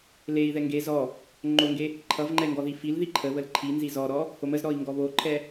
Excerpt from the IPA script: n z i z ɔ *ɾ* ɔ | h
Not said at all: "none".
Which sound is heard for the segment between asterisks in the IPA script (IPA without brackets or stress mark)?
ɾ